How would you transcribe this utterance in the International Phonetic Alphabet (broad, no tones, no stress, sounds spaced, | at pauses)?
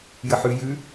j ə ħ ʉ j ʉ